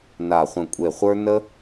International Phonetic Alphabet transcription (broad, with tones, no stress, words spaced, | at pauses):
na˧˩χʷə̃˧˩kʷʼe˧˩χʷə˞˦ nə˦